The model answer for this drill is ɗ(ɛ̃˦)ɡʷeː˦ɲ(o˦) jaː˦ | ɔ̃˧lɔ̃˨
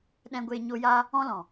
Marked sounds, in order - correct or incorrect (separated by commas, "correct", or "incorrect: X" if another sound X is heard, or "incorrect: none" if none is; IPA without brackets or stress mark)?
correct, correct